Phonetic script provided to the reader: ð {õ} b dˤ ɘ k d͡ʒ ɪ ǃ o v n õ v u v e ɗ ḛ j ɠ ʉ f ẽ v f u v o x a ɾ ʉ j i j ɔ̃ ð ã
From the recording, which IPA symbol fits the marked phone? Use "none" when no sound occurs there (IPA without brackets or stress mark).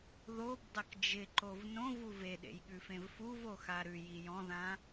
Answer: o